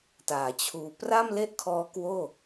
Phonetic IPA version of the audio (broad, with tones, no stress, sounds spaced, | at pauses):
t aː˩˦ t͡ɕʰ uː˧ p r a˥˩ m l e˥˩ ʔ kʰ ɔː˦˥ k w oː˥˩